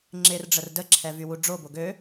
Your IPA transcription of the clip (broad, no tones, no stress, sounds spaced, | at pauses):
ŋ͡ǁ ɪ r ɖ͡ʐ ə r d ə ǁʰ ɛ v y w u ɖ͡ʐ o b o ɡ ø